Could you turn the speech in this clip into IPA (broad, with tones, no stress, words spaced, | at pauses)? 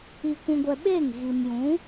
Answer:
i˧kʷũ˧ɡʷɛ˧ ɓe˦˨ŋɣi˨mjũ˨˦